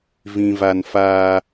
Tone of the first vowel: high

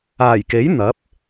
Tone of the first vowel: low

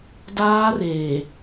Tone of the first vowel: high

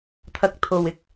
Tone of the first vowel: rising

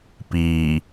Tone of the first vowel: low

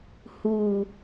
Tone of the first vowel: low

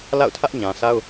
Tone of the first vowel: falling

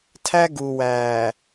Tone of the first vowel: high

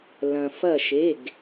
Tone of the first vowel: low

